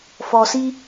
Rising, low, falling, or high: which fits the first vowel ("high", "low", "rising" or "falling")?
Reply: low